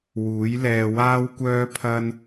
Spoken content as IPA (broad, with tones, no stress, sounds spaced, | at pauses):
w uː˨˥ j l ɛː˧ w aː˥ w kʷ œː˥ pʰ ɐ˥ n